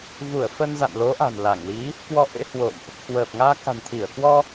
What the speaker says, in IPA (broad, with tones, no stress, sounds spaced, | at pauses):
v u˧˩ ə̯ f ə˧ n z a̰˧˨ n l o˨˦ ʔ a̤˨˩ n l a˧˩ ŋ l i˨˦ | k w ɔ˧ ʔ ḛ˧˥ h w o̰˧˨ m ʔ | k w əː˨˩ p̚ ŋ aː˧ k a̤˨˩ n t̪ʰ i˧˩ ə̯ k w ɔ˧